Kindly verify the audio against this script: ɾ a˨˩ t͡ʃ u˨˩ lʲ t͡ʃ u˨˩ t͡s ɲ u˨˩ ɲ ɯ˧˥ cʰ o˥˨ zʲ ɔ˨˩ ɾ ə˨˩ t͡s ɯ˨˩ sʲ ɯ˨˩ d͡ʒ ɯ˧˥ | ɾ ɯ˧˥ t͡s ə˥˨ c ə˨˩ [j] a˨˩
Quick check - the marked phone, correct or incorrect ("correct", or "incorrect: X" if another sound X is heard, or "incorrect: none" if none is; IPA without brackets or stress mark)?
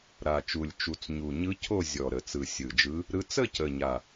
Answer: incorrect: ɲ